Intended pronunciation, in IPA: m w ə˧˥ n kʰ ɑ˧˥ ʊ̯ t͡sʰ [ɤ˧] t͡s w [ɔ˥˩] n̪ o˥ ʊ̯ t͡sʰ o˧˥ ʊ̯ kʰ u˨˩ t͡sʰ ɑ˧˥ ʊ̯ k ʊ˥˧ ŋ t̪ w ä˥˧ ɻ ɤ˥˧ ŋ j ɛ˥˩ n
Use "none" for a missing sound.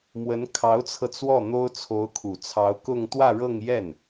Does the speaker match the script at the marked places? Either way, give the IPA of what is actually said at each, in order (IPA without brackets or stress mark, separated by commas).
ɤ˧, ɔ˥˩